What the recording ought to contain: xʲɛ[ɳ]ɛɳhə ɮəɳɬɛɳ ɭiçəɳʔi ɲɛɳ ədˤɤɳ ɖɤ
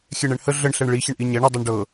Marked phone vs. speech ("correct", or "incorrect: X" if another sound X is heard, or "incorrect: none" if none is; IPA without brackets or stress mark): correct